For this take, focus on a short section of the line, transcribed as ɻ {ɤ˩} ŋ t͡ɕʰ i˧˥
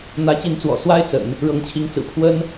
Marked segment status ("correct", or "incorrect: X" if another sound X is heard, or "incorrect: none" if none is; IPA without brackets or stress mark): incorrect: ɤ˧˥